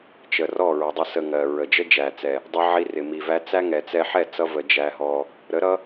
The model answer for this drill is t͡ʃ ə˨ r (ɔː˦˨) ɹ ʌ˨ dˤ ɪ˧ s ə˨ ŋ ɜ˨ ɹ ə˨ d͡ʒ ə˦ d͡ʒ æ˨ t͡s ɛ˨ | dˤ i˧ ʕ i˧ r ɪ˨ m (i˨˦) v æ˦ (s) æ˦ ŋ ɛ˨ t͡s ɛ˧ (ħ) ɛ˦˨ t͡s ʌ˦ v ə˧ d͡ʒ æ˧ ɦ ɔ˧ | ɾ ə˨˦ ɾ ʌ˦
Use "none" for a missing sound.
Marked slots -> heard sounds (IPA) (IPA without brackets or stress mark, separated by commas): ɔ˦˨, i˨, t͡s, ħ